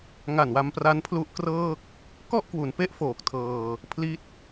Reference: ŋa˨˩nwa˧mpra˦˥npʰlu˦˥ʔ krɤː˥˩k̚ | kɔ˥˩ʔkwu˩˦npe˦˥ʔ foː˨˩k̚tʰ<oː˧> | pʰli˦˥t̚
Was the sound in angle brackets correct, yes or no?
no